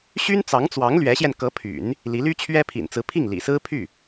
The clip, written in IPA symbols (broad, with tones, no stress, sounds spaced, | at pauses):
ɕ y˥ n t͡s ɑ˧˥ ŋ t͡s w ɑ˧˥ ŋ l ɥ ɛ˧˥ ɕ j ɛ˧ n k ɤ˧˥ pʰ y̰˨˩˦ n | l i˧˥ l y˥ t͡ɕʰ ɥ ɛ˥ pʰ ḭ˨˩ n t͡s ɹ̩˧˥ pʰ i˥˩ ŋ l ḭ˨˩ s ɹ̩˥ pʰ y˥˩